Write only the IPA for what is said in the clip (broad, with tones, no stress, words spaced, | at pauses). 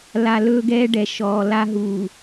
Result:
la˨lɵː˦ɡɛː˦ ɖɛ˨ʃɔː˨la˦ ɦuː˨